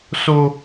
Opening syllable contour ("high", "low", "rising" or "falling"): high